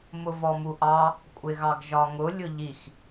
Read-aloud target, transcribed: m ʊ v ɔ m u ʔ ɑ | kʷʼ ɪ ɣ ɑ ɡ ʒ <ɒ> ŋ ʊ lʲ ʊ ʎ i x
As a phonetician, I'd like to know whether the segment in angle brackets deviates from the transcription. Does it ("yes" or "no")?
no